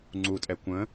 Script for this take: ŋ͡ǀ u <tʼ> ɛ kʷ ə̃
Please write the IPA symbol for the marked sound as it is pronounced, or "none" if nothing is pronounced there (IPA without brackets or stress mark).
tʼ